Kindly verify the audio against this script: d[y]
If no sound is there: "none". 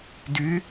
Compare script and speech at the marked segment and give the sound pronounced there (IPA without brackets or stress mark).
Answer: y